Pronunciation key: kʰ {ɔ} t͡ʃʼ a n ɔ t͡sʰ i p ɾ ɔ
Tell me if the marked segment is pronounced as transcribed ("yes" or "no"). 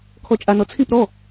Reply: yes